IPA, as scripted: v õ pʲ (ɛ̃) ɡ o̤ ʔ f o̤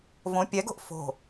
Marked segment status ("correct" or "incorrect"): incorrect